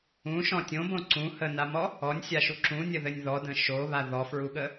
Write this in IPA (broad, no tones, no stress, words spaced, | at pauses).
ũʃɔ̃ tʲõbõ ǀũ hənamɔ | ɔnʲsʲaʃu ǁũnʲəðɘnʲ ðɔdə̃ ʃoβa ðɔfɹuɠə